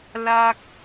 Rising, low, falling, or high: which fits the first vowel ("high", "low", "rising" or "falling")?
high